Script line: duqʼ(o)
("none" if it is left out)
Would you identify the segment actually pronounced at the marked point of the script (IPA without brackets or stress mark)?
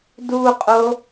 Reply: o